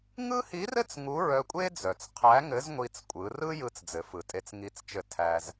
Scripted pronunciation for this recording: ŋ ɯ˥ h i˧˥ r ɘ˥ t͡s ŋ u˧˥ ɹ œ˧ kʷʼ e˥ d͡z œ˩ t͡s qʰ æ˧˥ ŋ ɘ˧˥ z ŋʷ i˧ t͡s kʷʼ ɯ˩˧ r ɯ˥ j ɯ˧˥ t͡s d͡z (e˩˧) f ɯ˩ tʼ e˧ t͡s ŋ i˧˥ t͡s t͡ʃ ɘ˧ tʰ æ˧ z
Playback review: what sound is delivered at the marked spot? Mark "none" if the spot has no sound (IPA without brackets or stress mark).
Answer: ɘ˩˧